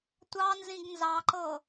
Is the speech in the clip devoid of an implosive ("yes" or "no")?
yes